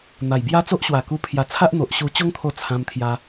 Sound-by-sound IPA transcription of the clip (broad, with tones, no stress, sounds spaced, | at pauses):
n̪ a˨˩ j b j a˦ t͡s o˦ ʔ ɕ w a˨˩ k u˦ pʰ j a˧ t͡sʰ a˦ ʔ n̪ o˨ ʔ ɕ u˧ t͡ɕ o˦ ŋ t̪ʰ o˧ t͡sʰ ã˧ m t̪ʰ j a˧